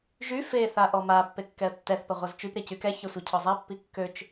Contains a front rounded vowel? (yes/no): yes